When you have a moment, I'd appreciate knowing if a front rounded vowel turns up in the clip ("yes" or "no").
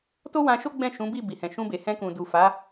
no